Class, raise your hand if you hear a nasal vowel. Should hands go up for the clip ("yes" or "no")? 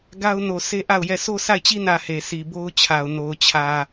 no